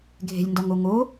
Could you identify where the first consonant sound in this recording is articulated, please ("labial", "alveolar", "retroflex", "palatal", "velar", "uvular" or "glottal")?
velar